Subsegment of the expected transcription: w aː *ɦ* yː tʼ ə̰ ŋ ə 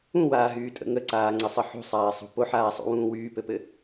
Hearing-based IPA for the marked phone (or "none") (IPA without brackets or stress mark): ɦ